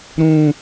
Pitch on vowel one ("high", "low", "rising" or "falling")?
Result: high